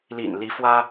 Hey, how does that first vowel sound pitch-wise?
low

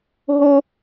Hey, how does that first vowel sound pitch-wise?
high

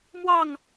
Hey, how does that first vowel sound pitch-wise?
falling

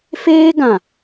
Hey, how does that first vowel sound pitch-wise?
high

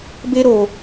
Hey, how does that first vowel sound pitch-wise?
high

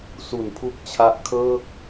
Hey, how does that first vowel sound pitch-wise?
low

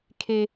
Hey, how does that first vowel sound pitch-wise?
high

